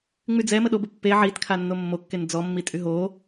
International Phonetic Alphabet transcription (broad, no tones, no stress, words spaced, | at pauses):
ŋ͡myd͡zɛmə ɗobə pːe ʕitkʰanːo mːokːen d͡zɔmːi tʼyɦo